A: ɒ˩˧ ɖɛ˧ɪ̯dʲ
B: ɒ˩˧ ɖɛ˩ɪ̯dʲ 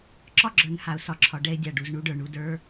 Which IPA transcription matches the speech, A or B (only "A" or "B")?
A